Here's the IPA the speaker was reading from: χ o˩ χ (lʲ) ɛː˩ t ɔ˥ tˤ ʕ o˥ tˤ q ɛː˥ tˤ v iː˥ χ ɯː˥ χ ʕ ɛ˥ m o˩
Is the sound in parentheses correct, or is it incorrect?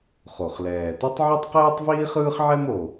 incorrect